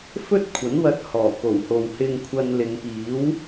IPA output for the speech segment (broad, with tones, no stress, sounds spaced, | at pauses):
f ɵ˥ t̚ kʷʰ ɐ˨˥ n w ɐ˧ t̚ h ɔː˨˩ k o˨˩ w h o˨ w h ɪ˧ ŋ kʷʰ ɐ˧ n l ɪ˨˧ ŋ p iː˨˥ w